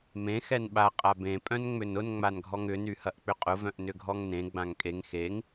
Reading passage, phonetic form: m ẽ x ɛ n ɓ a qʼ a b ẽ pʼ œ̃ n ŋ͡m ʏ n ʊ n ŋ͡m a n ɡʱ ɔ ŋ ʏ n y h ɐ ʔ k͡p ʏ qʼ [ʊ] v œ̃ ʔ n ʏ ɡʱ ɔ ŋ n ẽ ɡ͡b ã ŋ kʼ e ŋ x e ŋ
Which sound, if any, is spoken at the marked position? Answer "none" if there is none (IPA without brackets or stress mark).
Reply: ʊ